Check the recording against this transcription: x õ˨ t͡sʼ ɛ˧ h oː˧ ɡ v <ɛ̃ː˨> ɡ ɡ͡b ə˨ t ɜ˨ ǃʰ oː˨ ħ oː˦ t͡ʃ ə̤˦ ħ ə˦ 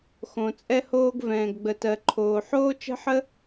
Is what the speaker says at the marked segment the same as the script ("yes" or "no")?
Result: yes